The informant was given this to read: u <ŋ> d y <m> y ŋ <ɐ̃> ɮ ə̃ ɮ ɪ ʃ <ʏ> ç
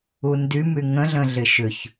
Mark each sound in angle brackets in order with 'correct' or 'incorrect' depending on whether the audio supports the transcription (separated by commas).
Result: incorrect, correct, incorrect, correct